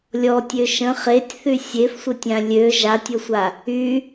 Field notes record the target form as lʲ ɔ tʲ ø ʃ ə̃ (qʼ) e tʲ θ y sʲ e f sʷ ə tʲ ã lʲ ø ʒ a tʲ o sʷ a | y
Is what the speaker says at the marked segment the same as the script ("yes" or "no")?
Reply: no